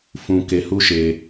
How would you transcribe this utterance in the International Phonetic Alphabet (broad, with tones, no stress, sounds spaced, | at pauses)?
f ũ˧ k e˧ h u˦ ʃ e˧